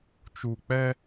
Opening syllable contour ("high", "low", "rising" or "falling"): low